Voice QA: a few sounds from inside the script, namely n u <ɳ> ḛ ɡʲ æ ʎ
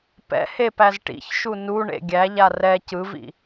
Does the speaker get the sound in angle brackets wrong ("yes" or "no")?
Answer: no